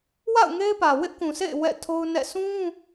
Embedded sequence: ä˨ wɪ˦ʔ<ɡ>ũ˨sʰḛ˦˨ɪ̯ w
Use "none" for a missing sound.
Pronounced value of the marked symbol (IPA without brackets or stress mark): k